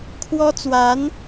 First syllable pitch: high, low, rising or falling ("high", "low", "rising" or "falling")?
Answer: high